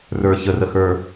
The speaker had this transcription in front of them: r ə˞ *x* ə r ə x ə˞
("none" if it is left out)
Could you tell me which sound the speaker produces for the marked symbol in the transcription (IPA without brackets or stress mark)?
ç